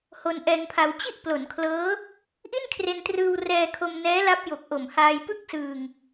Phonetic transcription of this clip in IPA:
h o˧ n ʔ ɛː˧ ŋ pʰ a˧ w t͡ɕ i˥˩ ʔ p l o˩˦ n kʰ l ɤː˦˥ | ʔ i˥˩ n kʰ r e˧ n t r ɯː˧ w r ɛː˧ kʰ o˧ m n ɛː˦˥ l a˦˥ p̚ j o˨˩ k̚ ʔ o˨˩ m h aː˧ j p ɯ˥˩ k̚ s ɯː˧ ŋ

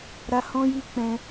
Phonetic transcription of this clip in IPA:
ɾ a˧ h ɔ̃˦ j i˦ k͡p ɛ̃˧

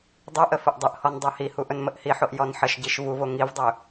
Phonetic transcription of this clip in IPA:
dˤ ɵ ʔ ə f ə ʔ dˤ ɵ ʔ h ɔ n dˤ o h i h u ʔ ɵ n m ə ʔ h i ħ o ʔ j ɔ n ħ ə ʃ ɟ i ʃ v u v o ŋ i v dˤ ɵ

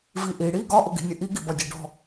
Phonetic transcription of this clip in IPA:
v i ʔ i ɽ i ɡ ɒ ʔ ʊ ɡ i̤ nʲ ə ʔ i ɡ i b ɒ dʲ ɔ ɖ ɔ̤

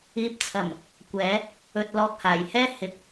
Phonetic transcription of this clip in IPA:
iː˨ p̚ t͡sʰ ɐ˨˩ m | kʷ ɛː˨˧ | ɵ˧ t̚ l ɔː˧ k̚ h aː˨˩ j h ɛː˥ h ɪ˨ k̚

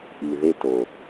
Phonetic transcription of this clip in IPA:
ʔ i˨ ð e˦ t o˨

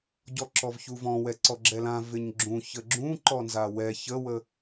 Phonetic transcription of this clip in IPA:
ɟ ɔ ǁ ɔ v ç u v ɔ̃ w ɛ ǀ ɔ ɡ͡ǁ ɛ l ã v ɪ ɲ ɡ͡ǁ ũ ç ə ɡ͡ǁ ũ ǃ ɔ n z a w ɛ ç ə w ə

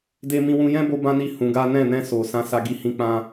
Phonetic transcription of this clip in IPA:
d e˧ m ĩ˧ w ũ˧ j ɛ̃˦ b o˦ b ã˦ n i˦˨ h ũ˨˦ ɡ a˦ n ɛ̃˦˨ n ɛ̃˧ s o˨ s ã˨˦ s a˧ ɡ i˧ h ĩ˧ k͡p ã˧

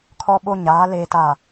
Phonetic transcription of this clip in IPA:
kʰ ɔ˦ ɓ o˦ ɲ aː˨˦ l eː˨ t a˨

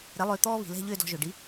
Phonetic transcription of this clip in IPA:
ɾ ɛ˨˥ lˠ ʏː˧ t̪ ɔː˥ β i̤˩ l ɛ̤˥˧ ʎ ʏː˥˧ d ɔ̤˧ ʒ ʏː˩ ɖ i˨˥

